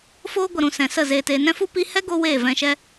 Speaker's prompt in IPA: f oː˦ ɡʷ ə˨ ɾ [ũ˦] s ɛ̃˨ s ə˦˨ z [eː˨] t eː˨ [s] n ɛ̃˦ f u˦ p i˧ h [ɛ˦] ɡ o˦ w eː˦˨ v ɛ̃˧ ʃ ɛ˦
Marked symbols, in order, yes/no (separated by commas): no, yes, no, yes